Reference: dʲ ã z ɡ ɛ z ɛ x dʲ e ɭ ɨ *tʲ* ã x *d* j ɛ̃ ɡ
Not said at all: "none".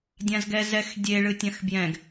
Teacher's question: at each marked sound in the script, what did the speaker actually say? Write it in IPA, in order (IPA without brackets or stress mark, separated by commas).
tʲ, b